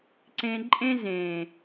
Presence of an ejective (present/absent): present